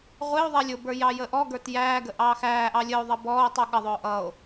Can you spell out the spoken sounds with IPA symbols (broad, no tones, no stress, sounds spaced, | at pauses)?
ʁʷ ɪ o̯ ðˤ ɛ lʲ ʊ b ə˞ j ɑ j ə ʔ ɔ ɡ ə˞ t j æː ɡ ə ʔ ɑː x æː ʔ ɑ lʲ ə o̯ ðˤ ʌ b ɔː o̯ tˤ u ɠ ʌ ðˤ ʊː ʔ ʌ o̯